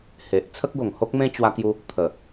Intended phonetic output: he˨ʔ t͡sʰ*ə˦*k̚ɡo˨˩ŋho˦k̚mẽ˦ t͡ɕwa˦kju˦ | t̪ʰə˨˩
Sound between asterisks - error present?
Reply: no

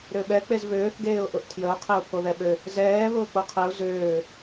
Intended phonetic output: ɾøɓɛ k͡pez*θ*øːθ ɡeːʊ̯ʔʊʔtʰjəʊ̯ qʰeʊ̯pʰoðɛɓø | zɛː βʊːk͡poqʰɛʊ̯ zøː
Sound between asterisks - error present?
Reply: yes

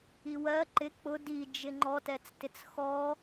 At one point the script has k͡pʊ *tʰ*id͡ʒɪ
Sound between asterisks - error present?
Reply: yes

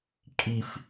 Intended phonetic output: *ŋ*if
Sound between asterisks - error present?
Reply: yes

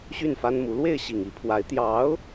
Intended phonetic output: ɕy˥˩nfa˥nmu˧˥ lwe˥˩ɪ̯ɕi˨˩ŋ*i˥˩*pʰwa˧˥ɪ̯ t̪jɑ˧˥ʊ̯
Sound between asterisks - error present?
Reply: yes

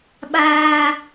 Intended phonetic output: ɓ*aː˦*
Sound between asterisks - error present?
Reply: no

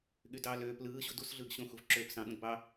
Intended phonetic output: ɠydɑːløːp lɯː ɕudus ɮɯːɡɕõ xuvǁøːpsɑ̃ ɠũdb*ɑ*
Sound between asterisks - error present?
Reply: no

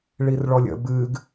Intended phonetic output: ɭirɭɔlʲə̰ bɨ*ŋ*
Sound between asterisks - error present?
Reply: yes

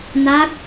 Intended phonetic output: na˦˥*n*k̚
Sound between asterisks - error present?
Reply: yes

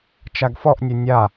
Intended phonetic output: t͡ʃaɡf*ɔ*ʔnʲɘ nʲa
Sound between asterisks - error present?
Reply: no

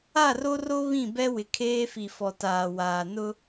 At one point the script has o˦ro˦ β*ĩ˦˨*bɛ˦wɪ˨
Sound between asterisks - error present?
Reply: no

